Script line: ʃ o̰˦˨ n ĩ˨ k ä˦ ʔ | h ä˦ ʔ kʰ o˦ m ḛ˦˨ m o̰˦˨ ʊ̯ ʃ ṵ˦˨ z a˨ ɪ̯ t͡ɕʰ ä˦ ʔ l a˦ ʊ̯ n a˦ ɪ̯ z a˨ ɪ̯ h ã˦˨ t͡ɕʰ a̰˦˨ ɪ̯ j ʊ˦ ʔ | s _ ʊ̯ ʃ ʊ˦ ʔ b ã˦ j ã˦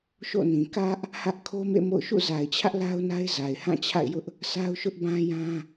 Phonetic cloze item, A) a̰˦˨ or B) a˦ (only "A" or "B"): B